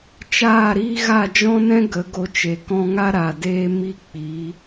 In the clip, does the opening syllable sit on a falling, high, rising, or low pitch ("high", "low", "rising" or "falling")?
falling